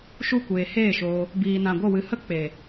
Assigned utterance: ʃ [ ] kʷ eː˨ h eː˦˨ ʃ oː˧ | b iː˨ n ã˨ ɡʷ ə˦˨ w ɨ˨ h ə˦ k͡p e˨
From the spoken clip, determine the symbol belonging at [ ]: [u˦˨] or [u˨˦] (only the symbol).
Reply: u˦˨